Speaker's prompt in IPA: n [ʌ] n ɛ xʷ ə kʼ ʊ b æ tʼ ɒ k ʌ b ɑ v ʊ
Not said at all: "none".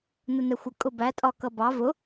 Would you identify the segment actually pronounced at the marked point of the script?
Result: ə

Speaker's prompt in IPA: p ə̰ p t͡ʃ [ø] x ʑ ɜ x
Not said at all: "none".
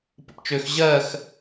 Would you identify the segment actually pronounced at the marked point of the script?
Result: ø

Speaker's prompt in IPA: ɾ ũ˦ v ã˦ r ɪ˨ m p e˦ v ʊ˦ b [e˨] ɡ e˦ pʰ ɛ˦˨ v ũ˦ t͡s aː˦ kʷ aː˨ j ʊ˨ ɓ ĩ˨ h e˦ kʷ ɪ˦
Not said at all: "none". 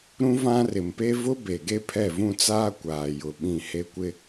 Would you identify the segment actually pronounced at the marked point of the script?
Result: e˨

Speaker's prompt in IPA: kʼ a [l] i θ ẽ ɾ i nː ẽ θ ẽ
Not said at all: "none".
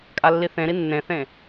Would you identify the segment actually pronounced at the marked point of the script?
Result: lː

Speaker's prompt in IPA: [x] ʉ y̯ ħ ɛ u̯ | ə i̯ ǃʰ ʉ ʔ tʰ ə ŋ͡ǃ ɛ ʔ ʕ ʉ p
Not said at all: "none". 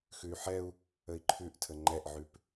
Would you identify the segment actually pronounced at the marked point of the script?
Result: x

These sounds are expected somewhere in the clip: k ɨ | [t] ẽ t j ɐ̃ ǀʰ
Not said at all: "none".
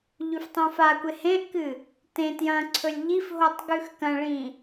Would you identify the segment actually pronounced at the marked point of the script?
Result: t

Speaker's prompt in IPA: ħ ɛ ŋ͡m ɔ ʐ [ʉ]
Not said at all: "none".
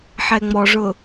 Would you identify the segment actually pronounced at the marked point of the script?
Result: ʊ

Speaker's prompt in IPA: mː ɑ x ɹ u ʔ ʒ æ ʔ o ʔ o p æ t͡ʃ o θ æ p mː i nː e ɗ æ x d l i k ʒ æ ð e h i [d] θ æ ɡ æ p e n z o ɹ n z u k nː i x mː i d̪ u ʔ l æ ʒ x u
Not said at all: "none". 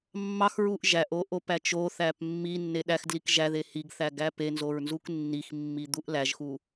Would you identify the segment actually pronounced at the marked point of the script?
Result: ɡ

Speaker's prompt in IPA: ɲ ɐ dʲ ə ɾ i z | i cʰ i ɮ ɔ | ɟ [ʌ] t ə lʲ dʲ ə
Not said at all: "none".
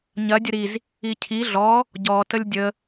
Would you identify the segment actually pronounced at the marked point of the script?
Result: ɔ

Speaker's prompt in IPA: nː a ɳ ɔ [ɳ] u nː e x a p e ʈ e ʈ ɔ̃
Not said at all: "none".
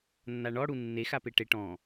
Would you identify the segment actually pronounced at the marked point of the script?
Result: ɽ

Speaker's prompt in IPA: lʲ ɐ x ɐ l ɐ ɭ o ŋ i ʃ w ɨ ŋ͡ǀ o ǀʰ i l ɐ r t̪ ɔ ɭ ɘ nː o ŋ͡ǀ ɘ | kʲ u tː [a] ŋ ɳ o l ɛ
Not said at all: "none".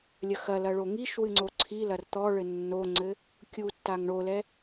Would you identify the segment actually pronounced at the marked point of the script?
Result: a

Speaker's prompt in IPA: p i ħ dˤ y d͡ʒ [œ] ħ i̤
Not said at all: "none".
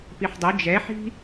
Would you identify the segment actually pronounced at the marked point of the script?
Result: ɛ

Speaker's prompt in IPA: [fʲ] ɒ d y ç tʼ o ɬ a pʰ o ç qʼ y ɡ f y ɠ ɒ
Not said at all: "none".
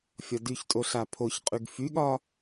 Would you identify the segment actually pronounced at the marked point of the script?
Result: fʲ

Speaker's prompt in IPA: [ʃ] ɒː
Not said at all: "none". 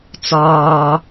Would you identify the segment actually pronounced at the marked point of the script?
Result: t͡s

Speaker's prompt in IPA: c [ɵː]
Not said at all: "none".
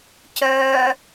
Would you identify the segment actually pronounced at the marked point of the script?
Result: œː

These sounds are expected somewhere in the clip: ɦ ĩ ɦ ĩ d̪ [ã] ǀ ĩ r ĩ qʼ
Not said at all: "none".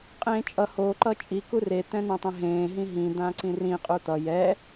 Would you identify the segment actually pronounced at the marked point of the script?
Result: ã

